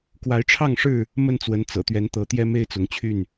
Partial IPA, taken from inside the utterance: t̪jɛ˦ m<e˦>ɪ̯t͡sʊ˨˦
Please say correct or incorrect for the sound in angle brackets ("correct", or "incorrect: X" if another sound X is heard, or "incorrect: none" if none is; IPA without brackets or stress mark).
correct